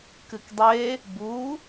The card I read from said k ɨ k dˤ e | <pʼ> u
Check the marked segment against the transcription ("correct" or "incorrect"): incorrect